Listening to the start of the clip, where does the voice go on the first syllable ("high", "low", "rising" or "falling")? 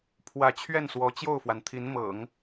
rising